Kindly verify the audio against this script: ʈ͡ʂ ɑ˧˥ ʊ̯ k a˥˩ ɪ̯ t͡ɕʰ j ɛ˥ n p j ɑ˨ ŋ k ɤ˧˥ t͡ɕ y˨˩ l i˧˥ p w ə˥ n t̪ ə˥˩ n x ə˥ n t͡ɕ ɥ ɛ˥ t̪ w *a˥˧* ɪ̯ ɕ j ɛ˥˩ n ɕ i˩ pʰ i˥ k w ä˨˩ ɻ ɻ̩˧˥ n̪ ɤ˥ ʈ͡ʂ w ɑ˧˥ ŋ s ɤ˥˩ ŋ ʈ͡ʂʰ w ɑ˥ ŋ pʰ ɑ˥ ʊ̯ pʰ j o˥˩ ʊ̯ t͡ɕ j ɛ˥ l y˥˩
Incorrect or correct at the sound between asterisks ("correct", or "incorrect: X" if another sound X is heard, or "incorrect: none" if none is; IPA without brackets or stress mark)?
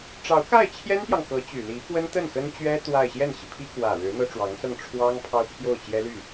correct